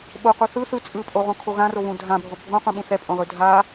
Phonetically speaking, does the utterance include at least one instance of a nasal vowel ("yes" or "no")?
yes